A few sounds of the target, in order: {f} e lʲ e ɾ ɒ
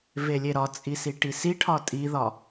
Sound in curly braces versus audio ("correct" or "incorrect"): incorrect